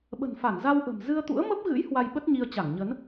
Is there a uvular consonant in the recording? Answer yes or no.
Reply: no